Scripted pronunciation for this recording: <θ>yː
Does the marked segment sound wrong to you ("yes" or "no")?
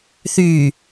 no